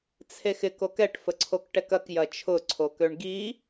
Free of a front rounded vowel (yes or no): no